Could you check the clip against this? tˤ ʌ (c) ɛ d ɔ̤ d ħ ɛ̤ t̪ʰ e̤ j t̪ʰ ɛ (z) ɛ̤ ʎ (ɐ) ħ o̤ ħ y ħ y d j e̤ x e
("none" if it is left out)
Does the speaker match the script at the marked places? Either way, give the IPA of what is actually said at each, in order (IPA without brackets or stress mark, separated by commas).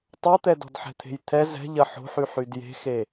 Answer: t̪, z, ɐ